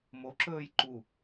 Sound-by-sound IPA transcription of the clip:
m o ǁ ɵː j ǃ u

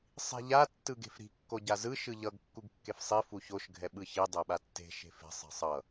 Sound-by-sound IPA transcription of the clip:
sˤ i̤ ʎ a tː ɯ ɡ e̤ f ɾ i̤ kː o ɟ a z ɯ ʃ ɯ ʎ ʌ ɡ kː u ɡ kː e f sˤ i f u ç o ʃ ɡʱ ɛ ɓ ɯ ç i dˤ e ɓ a tː e̤ ʃ e̤ f e̤ sˤ e̤ sˤ ʌ

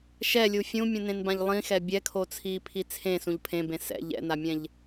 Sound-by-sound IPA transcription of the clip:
ʃ ɛ lʲ u fʲ ũ mʲ ũ n ẽ n b ã ʎ lˠ ĩ x ɛ bʲ ɛ kʰ o t͡sʰ iː pʰ i t͡sʰ ẽ s ũ ʎ pʰ ẽ b ẽ s ɛ̰ ʎ ɛ̰ n a mʲ ɛ̃ ʎ

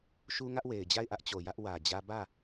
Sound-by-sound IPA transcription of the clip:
ʃ u˦ ŋ ä˦ ʔ w e˨ ɪ̯ d͡ʑ a˦˨ ɪ̯ ʔ ä˦ ʔ t͡ɕ o˨ j ä˦ ʔ w ä˨ d͡ʑ ä˦ b ä˦˨

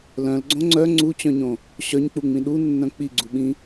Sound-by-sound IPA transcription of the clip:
l œ̃ l ɡ͡ǀ õ ŋ͡ǀ œ ŋ͡ǀ u t͡ɕ œ̃ ɲ õ | ɕ œ ɲ k͡p u ŋ͡m ĩ ɗ u nː œ̃ k͡p i ɡ͡ǀ u ɓ ĩ

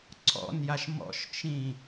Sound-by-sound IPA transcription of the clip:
ǀʰ ɔ̰ n j a ʃ m ɔ̰ ʃ t͡ʃ ĩ

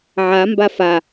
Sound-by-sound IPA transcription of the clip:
ʕ a m b a f a

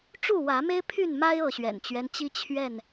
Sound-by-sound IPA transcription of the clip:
ʈ͡ʂ u˥˨ w ä˨˦ m e˦ ɪ̯ pʰ y˥˨ n m a˦ ɪ̯ ɤ˥˨ ɕ ɥ ɛ̰˨˩ n t͡ɕ ɥ ɛ˦ n t͡ɕ i˦ t͡ɕʰ ɥ ɛ˥˨ n

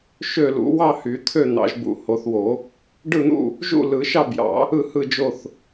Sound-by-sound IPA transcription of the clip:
ʃ ø˥˨ l ṵ˨˩˦ w ɑ˥˨ h y˨˩˦ t̪ʰ ø˥˨ n̪ ɑ̰˨˩˦ ʒ b ṵ˨˩˦ h o˨˩˦ θ w o˨˩˦ | ɖ ɯ˥˨ n̪ ṵ˥˨ | ʒ ṵ˥˨ l ɯ˨˩˦ ʃ ɑ˥˨ b j ɑ̰˨˩˦ | ɯ˥˨ h ɯ˥˨ d͡ʒ o˥˨ θ

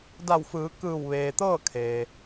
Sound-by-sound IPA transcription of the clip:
d a˧˩ w f ɯː˩˧ k ɯː˧˩ w ʋ eː˩ t̪ ɤː˥˨ kʰ eː˩

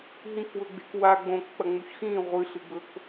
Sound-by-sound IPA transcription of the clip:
ɦ ĩ k w ɵ ɡ͡b e̤ k w a ɡ͡b õ k k͡p ɐ ŋ͡m u ç x ĩ ʁʷ ɨ ɬ ɨ ɡ͡b ɵ k

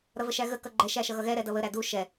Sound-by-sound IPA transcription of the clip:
ɾ ʌ v ə ʃ æ ɣ ə k ʌ ɡ͡ǃ ɛ ʃ æ ʃ ʌ ɣ ʌ ɣ ɛ ɾ ɛ d ʌ β ə ɾ æ d u ʃ ɛ

